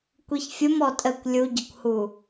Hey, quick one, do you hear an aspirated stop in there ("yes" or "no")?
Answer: no